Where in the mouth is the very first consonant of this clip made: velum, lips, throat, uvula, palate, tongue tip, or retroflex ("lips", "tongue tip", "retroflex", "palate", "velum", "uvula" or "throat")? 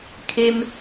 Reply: velum